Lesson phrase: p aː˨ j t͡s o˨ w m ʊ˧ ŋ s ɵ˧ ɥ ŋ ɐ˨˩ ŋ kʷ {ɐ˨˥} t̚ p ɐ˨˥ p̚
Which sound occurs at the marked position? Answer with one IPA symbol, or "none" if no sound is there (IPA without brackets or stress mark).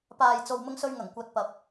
ɐ˨˥